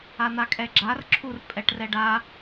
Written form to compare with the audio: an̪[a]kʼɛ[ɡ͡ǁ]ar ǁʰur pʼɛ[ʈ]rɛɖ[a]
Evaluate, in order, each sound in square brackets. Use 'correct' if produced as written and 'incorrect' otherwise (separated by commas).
correct, correct, correct, correct